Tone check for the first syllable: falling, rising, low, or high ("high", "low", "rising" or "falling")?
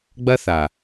high